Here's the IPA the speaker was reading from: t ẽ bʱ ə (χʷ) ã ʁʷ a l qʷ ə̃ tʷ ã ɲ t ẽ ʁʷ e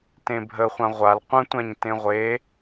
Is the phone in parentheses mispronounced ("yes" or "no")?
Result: no